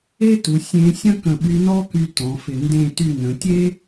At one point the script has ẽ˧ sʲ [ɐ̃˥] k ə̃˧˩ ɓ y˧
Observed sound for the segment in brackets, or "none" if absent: ɐ̃˥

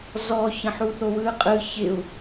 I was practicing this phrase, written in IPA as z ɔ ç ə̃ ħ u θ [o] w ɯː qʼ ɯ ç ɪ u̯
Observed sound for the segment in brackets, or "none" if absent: o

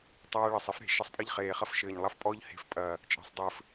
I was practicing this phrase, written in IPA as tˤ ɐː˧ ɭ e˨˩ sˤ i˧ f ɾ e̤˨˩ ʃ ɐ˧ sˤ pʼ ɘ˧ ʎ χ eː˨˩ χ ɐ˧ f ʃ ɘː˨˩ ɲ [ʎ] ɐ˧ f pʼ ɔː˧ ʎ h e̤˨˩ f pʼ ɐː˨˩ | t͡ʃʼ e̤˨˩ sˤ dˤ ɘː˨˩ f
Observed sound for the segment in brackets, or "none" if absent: lˠ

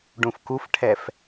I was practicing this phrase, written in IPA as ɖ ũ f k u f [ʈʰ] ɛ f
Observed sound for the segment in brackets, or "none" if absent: ʈʰ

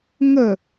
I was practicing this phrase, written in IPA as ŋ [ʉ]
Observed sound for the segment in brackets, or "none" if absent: ə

